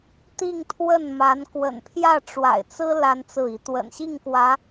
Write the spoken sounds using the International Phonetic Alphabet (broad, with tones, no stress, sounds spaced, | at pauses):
t̪ i˥˧ ŋ t̪ʰ w ə˥˩ n m a˧˥ n k w ə̰˨˩ n pʰ j ä˥˩ ʈ͡ʂ w a̰˨˩ ɪ̯ t͡s ɹ̩˥ l a˥ n t͡s ɹ̩˥˩ i˧˥ t̪ w ə̰˨˩ n ɕ i˥˩ ŋ k w ä˧˥